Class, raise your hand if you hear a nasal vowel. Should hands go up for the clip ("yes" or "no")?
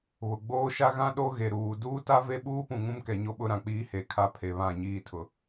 yes